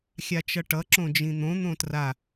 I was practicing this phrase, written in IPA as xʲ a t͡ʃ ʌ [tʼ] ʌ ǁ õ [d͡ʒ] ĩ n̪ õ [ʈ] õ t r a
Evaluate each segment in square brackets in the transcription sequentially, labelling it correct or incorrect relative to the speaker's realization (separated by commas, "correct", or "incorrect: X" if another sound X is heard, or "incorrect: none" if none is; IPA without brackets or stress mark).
incorrect: ʈ, correct, incorrect: n̪